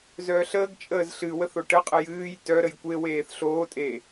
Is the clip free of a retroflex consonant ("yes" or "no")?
no